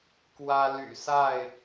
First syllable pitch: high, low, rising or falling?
high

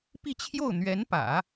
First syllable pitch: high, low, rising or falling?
falling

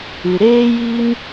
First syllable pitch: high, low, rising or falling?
low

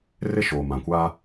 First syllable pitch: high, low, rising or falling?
high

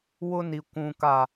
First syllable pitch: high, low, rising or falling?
high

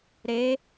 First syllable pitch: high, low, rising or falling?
rising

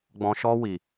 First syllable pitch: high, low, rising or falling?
low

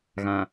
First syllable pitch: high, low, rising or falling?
low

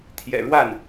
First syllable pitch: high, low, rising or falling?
low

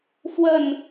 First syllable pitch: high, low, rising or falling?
falling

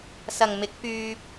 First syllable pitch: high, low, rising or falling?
low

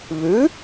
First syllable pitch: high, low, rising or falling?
rising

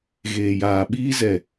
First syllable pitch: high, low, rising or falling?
low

